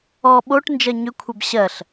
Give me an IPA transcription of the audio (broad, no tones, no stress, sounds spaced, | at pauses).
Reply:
ɔ ɓ o ʈ n d͡ʒ ɜ ɲ ʏ kʷʰ ɛ b ɕ ɜ ɬ